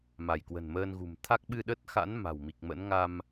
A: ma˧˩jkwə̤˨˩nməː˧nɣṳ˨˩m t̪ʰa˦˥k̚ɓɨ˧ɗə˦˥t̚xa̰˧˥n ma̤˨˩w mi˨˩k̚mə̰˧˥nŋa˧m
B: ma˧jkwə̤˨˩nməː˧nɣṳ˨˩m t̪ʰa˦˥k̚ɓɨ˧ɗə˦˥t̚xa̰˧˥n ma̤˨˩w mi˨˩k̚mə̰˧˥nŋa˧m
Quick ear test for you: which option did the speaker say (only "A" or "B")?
A